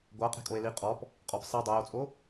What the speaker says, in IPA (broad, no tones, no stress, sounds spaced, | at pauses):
ɡʷ a qʼ e̤ kʼ o e̯ l i qʼ ɔ p | qʼ ɔ p sˤ i dˤ o j o t͡sʼ o